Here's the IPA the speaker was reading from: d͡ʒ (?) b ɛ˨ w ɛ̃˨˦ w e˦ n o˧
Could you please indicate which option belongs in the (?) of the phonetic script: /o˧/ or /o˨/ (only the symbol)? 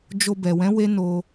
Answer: o˧